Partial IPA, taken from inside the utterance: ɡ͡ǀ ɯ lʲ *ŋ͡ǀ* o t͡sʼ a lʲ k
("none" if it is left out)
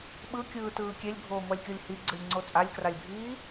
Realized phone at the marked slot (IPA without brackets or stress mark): ŋ͡ǀ